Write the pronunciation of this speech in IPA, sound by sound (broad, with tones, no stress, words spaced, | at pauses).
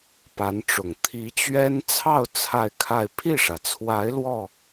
pa˧˥nʈ͡ʂʊ˨˩ŋ t̪ʰi˧˥t͡ɕɥɛ˥n t͡sʰɑ˥˧ʊ̯ t͡sʰa˥˧ɪ̯kʰa˥˧ɪ̯ pʰi˥˩ʂä˩t͡sʰwa˧˥ɪ̯ lwɔ˥˩